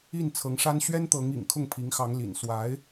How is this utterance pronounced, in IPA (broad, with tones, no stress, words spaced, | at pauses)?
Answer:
i˥˩nt͡sʰɤ˧˥ŋʂa˥n ɕɥɛ˥nt̪ɤ˧˥ŋ ḭ˨˩ŋkʰʊ˥˩ŋpʰi˧˥ŋxɑ˧˥ŋ lḭ˨˩n swa˧˥ɪ̯